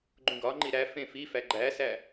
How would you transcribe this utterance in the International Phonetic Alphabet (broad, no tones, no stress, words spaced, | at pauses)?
ɡ͡ǃũɡɒŋ͡ǃi ɾæ fẽfifæ ɡ͡ǃæsæ